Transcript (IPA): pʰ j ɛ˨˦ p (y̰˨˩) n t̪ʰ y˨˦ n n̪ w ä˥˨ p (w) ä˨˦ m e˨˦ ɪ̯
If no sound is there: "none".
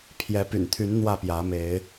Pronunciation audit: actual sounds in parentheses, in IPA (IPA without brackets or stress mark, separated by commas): y̰˨˩, j